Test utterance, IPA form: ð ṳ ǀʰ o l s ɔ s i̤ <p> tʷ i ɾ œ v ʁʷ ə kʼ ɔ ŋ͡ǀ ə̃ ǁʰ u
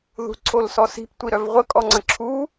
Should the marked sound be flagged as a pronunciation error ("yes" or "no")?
no